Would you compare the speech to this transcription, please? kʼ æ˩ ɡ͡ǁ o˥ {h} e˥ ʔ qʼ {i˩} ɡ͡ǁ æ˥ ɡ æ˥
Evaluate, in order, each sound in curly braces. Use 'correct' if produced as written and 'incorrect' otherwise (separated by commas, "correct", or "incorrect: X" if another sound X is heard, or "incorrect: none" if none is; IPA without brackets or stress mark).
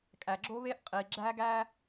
incorrect: β, correct